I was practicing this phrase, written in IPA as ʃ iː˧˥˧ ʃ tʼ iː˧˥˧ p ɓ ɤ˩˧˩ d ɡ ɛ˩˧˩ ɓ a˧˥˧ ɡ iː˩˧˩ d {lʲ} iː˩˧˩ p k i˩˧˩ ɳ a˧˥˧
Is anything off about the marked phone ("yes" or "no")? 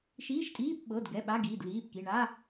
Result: yes